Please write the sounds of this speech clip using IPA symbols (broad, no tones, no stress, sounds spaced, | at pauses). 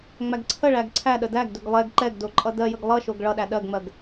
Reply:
ŋ͡m æ ɡ ǀʰ ə ɭ æ ɡ ǀʰ æ ɗ ə d æ ɡ d ɵ ɡ lˠ ɛ ɡ ǃ ɛ ɡ d o ǃʼ ʌ d ɜ j ə ɡ lˠ ʌ ʃ o ɡ ɭ ʌ ɗ æ ɗ ɜ ɡ ŋ͡m ɜ ɡ